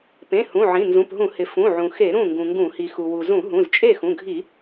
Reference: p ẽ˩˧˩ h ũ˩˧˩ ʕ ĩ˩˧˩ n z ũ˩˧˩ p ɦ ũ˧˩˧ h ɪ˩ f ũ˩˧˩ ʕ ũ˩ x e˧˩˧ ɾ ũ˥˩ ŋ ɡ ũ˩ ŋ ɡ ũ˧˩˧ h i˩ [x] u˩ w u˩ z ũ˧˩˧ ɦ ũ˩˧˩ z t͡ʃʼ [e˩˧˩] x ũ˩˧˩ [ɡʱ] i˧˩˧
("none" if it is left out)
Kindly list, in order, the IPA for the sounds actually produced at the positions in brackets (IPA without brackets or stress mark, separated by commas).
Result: x, e˥˩, ɡʱ